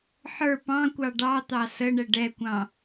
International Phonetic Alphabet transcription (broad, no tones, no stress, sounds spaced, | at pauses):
ħ ə˞ p ɑ̃ kʷ ɑ ɖ ɑ t̪ ɑ s ə ɳ ɛ ɖ ɛ kʷ ɑ̃